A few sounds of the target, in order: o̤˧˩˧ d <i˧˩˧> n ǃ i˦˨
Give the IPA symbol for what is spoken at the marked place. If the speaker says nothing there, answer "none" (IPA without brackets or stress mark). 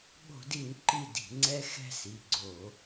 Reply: i˧˩˧